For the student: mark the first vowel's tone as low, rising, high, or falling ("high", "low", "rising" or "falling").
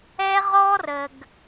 high